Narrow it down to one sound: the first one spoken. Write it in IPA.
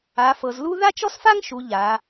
a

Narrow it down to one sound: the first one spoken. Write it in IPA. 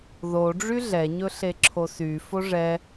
ð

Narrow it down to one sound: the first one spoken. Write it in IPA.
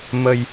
m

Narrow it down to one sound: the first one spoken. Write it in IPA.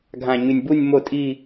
ɡʱ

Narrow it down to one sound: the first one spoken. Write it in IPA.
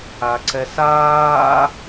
a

